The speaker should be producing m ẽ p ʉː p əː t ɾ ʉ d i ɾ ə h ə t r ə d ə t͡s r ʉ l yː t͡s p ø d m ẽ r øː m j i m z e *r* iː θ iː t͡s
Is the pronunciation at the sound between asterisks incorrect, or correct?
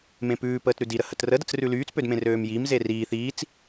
correct